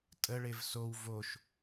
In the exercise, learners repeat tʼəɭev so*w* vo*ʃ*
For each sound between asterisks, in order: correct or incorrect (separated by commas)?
correct, correct